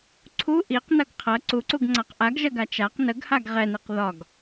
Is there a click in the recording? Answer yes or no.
yes